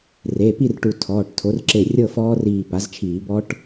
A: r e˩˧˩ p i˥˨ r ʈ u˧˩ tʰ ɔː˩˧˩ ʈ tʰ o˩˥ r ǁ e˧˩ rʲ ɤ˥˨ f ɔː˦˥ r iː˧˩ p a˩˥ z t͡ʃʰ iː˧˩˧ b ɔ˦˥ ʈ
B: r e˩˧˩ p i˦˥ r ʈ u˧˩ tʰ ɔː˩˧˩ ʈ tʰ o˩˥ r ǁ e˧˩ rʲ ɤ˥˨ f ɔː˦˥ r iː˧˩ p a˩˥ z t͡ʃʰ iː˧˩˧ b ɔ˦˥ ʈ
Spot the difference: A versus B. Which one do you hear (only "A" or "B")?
A